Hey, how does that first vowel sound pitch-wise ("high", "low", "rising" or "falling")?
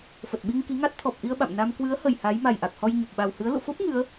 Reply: low